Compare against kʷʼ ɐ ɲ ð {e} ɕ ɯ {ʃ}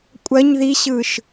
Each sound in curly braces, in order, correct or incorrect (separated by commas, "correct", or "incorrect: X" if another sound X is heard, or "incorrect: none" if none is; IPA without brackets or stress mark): incorrect: i, correct